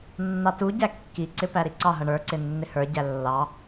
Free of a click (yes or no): no